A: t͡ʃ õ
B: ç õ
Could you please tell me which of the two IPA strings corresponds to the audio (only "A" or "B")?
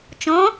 A